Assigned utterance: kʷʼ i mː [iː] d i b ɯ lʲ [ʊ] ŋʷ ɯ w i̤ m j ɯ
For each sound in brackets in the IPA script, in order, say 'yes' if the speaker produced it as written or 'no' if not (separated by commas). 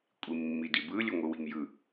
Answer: no, no